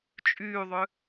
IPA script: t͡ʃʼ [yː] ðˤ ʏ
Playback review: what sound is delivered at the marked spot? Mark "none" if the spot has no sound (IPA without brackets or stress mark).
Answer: yː